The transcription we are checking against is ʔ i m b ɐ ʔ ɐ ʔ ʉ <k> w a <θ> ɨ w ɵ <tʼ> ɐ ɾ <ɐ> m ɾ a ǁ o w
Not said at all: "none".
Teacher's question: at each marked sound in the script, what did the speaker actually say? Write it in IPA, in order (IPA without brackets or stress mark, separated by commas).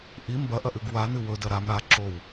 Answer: ɡ, n, d, a